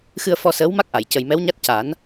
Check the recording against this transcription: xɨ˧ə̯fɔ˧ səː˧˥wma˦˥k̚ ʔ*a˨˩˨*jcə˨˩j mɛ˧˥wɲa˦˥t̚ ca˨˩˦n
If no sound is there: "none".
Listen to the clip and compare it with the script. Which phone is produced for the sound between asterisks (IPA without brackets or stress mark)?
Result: a˨˩˨